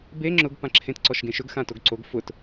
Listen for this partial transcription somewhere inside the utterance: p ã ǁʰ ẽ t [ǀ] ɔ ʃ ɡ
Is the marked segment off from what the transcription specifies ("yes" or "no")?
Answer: no